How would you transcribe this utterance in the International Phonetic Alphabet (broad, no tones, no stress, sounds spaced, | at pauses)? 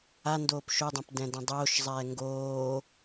a n d oː p ʃ o dˤ õ p d ɛ̃ d ã dˤ oː ʃ zˤ ɛː ŋ ɡ oː